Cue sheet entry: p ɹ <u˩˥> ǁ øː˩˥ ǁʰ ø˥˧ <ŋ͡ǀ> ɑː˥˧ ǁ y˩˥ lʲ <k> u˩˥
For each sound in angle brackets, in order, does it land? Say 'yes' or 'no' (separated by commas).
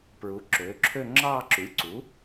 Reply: yes, no, no